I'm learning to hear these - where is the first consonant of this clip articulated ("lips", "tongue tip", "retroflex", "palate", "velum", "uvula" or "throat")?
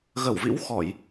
velum